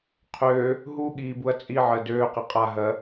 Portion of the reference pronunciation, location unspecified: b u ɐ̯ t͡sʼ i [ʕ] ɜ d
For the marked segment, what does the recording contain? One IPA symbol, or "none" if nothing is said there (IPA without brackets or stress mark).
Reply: ʕ